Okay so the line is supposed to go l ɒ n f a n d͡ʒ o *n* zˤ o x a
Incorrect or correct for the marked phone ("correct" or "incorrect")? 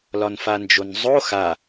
correct